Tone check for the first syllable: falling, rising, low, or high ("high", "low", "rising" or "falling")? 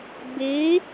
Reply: rising